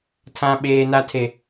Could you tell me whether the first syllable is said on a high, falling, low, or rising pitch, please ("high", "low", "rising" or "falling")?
high